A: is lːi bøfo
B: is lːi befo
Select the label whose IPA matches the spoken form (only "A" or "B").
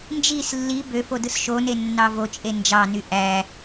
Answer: A